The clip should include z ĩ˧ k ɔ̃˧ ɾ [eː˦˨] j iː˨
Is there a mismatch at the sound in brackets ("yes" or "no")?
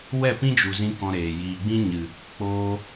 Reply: yes